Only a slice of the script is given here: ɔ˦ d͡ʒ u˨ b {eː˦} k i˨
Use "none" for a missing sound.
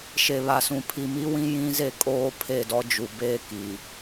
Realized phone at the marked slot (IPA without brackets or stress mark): eː˦